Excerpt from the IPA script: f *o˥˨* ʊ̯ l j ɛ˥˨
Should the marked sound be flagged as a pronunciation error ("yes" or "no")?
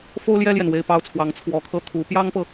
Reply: yes